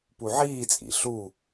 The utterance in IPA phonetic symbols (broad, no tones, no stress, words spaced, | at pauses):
puʕiːt͡sʼḭ ɬu